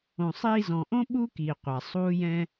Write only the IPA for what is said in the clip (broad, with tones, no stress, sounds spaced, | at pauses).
õ˨ sˤ iː˧ z ɔ̃˨ ʔ õ˦ ɓ u˦ k i˨ qʷ a˨ sˤ uː˦ j ɛ̃˦